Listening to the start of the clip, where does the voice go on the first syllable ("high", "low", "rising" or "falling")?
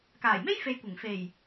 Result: low